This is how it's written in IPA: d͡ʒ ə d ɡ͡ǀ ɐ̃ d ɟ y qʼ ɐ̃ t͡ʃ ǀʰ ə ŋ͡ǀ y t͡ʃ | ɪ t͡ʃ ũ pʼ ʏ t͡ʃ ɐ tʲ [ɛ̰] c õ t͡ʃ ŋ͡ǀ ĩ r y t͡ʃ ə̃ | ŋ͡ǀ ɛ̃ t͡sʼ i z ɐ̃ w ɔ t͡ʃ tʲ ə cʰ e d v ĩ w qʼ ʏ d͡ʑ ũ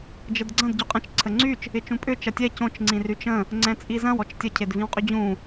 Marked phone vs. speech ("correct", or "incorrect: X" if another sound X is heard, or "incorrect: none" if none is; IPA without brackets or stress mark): incorrect: ɛ